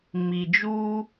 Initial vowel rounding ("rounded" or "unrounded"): unrounded